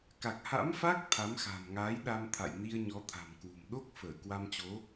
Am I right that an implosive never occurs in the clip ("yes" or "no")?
no